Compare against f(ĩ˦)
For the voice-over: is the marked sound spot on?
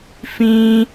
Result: yes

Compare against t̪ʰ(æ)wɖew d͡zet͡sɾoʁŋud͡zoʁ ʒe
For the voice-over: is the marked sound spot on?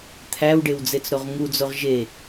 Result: yes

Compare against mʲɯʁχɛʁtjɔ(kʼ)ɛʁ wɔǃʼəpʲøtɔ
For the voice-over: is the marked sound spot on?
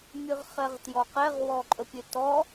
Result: no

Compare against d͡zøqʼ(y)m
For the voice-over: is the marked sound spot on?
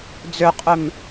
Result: no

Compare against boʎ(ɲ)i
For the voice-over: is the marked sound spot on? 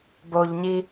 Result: yes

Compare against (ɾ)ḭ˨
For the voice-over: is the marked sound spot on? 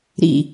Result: yes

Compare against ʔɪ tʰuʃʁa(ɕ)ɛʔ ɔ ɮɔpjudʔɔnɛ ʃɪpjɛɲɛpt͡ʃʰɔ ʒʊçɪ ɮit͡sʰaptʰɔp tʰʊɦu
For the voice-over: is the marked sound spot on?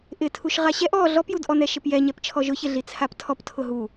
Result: yes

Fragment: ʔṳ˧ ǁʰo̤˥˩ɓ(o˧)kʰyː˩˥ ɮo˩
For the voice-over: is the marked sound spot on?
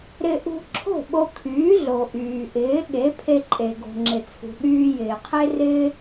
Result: yes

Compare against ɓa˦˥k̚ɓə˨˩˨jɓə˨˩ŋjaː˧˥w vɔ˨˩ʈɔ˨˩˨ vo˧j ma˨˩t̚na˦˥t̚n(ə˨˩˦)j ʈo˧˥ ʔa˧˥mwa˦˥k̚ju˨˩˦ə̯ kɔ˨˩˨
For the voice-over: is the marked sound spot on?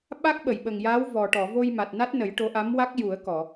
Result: yes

